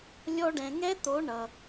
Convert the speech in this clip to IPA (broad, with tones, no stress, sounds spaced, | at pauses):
lʲ ɔ˥ ɖ ɛ̃˧ ŋ ɛ˥ t̪ o˧˥ ɳ ʌ˧